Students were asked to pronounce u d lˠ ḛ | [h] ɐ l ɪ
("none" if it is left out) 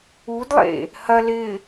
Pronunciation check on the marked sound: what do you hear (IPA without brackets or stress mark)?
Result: h